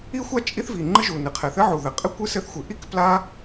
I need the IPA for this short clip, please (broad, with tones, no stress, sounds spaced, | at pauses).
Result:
i˥ xʷ a˥ t͡ʃʼ i˥ θ v i˩ ŋ͡ǃ ɨ˥ ʒ u˩ n ɨ˩ qʰ ɛ˩ θ ɘ˥ ʕ u˩ ð ɘ˩ qʼ ɨ˥ kʷ ɨ˥ s ɘ˥ θ xʷ ɨ˩ ʔ i˥ k p l a˥